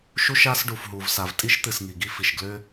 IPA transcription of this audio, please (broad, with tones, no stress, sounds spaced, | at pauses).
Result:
ʃ u˥ ʃ a˥ s ɖ u˩ f ɦ u˩ v s a˩ v tʼ i˥ ʃ t̪ ɨ˩ s ŋ i˩ ɡ i˥ f i˩ ʃ ɡ l ʏ˥